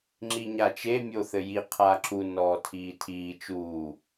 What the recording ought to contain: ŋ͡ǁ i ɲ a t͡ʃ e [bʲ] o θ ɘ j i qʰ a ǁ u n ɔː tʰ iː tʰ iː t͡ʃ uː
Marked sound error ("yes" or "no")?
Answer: yes